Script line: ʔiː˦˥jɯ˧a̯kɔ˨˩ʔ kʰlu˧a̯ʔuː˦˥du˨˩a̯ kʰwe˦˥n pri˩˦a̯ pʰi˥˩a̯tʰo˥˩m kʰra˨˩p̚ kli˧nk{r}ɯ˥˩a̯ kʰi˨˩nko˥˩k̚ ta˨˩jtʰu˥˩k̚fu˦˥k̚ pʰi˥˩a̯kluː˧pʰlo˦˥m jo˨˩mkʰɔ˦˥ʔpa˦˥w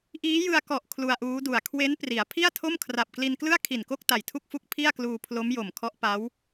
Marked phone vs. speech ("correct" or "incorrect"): incorrect